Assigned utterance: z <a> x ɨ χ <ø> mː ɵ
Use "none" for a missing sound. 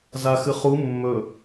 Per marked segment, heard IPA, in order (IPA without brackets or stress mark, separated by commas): a, u